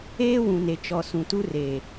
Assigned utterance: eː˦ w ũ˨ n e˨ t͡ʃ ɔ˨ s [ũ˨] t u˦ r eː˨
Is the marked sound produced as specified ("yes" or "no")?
yes